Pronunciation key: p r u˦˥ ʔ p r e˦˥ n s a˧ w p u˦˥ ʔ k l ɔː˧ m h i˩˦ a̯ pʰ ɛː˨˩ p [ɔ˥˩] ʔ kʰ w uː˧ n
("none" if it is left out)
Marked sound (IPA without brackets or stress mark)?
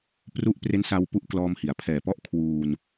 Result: ɔ˥˩